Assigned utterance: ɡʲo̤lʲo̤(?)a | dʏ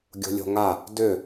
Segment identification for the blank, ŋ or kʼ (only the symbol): ŋ